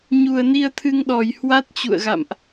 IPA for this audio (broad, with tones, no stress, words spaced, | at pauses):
ɲu˨˩ə̯ni˧ə̯t̪ʰɨ˧ŋɗɔ˧˩j hwa˦˥t̚t͡ɕṵ˧˨ə̯ɣa̰˧˨mʔ